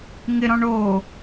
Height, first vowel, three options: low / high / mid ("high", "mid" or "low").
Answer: high